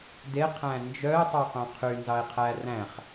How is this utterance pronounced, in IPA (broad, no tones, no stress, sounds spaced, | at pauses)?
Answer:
d e qʰ æ̃ n d͡ʒ œ e̯ tˤ œ q œ̃ qʰ y n z ɑ e̯ qʰ æ r æ̃ χ